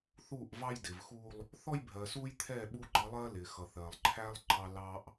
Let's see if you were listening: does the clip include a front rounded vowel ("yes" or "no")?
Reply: no